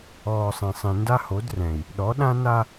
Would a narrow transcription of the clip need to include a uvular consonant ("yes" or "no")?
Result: no